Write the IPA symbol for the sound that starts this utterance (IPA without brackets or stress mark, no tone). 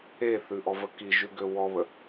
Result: e